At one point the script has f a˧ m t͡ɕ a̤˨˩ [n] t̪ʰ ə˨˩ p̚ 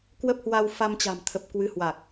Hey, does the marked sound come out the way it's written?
no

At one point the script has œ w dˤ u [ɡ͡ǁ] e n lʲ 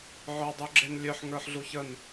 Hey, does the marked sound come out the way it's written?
yes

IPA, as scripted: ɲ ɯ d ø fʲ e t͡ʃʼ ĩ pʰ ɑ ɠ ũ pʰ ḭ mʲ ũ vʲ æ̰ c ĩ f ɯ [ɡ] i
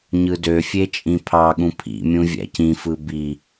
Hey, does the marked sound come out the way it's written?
no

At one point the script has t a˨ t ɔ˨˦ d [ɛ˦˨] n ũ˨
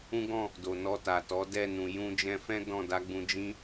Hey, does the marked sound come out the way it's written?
yes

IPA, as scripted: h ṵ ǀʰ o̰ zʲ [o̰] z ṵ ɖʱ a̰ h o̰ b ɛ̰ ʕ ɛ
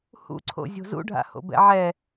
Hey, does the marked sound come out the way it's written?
no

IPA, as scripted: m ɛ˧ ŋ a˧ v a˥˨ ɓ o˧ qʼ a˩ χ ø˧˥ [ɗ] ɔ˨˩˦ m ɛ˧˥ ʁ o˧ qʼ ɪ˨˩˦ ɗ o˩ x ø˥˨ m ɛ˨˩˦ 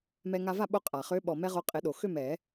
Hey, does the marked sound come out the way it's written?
no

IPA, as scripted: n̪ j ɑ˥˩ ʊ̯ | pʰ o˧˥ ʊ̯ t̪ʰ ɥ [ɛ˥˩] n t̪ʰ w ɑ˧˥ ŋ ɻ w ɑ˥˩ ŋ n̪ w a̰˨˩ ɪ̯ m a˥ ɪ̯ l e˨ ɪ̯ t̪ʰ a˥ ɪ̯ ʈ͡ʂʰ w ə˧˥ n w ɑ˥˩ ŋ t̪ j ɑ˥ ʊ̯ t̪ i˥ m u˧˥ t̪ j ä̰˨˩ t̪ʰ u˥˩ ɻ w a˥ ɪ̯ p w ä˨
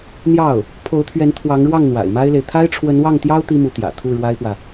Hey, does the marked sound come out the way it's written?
no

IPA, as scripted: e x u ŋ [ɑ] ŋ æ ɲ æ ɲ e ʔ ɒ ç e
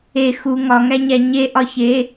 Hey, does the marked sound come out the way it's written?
no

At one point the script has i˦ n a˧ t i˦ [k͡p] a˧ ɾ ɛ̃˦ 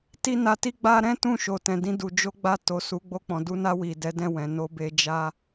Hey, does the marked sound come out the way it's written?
no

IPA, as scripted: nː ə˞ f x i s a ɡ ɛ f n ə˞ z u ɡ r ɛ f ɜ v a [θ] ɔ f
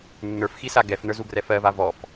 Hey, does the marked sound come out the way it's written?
no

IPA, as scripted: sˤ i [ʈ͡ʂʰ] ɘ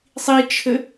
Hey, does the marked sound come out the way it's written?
no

